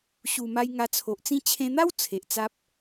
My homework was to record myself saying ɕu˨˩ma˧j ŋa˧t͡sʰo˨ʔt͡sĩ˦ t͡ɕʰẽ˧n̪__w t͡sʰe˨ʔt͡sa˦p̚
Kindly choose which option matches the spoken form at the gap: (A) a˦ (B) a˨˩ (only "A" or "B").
A